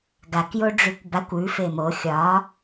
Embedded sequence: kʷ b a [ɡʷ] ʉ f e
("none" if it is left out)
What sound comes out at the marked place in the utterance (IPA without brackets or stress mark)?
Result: kʷ